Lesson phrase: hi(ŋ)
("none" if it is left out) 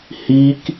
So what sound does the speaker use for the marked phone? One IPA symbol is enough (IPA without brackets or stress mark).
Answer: k